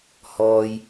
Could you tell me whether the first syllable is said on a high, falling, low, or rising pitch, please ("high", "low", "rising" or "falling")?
low